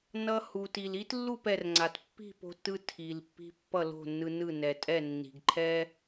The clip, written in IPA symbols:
nʌ˧ hu˩ti˩li˥t lːu˥˩pɛ˩r ŋ͡ǀa˩t pːi̤˥˩ po̤˧tːɯ˧ tʰi˩lpːi̤˧ pːʌ˥˩lo̤˥˩nːɯ˧nɯ˥˩ nɛ˩tʼɛ˥˩ nːi̤˩ɡǃʰɛ˥

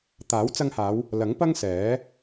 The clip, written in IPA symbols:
t̪aː˨˥wt͡sɐ˧ŋhaː˨˧w | lɐ˨˥ŋpɐ˥ŋsɛː˨˥

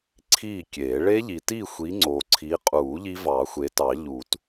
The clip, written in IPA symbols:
ǀʰiː˥˨kʲe˨˩˦ ɭe˦˥ʎi˨ti˥˨xʷi˨˦ ŋ͡ǀoː˨ǀʰi˨˦qʼuː˨˩˦ ʎi˦˥vɑː˨˩˦xʷe˨˦tɑ˨˩˦ ʎuː˨˩˦t

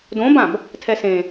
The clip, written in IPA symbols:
dõbãb | tʰɛsẽ

